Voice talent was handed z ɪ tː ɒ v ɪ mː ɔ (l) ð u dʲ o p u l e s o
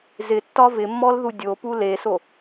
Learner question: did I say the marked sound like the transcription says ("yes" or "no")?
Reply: yes